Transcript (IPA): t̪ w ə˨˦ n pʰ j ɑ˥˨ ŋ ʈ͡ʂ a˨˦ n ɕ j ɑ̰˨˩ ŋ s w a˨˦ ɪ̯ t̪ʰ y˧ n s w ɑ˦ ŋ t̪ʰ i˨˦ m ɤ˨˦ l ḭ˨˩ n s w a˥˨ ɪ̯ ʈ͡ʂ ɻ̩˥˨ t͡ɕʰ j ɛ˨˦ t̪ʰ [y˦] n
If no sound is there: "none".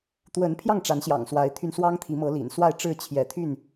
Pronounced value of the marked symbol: y˥˨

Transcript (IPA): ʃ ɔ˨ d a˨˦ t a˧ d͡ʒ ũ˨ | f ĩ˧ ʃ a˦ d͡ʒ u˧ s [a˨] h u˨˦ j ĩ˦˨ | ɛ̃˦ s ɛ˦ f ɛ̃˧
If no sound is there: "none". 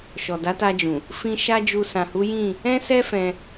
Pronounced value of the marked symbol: ã˨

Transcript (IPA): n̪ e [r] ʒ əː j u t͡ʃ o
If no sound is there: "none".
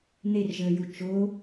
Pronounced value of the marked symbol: r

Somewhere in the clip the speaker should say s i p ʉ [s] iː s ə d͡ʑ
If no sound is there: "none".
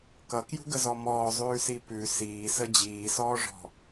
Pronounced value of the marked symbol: s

